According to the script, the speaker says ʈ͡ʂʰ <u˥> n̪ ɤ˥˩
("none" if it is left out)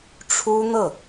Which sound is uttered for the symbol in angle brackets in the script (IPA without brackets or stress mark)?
u˥